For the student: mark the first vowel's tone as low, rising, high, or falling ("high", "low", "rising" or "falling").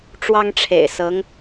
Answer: high